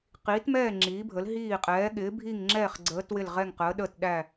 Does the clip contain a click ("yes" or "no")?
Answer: yes